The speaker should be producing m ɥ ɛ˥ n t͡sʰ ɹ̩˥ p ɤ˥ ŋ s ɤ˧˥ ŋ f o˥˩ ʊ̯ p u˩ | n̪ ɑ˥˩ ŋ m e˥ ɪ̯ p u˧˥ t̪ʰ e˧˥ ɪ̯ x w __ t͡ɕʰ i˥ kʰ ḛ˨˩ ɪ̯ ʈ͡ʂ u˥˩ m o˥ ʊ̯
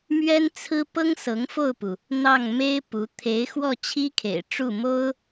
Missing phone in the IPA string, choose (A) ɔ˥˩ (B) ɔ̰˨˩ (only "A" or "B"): A